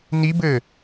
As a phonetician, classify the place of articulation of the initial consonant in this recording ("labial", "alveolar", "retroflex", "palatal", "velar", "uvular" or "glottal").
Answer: alveolar